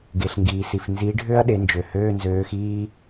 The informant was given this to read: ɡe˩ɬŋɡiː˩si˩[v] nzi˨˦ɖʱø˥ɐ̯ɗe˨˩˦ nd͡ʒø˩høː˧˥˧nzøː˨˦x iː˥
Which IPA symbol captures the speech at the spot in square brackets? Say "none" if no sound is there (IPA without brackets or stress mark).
f